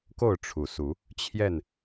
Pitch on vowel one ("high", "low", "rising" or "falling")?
falling